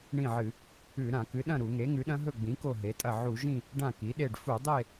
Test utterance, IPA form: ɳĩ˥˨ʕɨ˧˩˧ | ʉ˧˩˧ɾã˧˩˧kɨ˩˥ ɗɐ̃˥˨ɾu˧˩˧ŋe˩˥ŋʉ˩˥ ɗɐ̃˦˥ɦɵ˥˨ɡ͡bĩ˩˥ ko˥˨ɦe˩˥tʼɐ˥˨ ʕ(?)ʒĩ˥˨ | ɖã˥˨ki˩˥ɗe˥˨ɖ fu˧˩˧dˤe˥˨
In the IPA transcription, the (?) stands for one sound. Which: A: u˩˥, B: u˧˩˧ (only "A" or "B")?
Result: B